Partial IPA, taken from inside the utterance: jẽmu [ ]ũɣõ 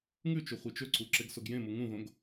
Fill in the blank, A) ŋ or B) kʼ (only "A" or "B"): A